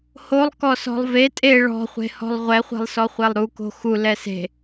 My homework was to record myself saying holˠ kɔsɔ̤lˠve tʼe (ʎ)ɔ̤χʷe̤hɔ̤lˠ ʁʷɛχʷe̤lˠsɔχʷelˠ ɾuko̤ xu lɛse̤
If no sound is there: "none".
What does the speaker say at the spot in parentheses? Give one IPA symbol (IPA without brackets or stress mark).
ɭ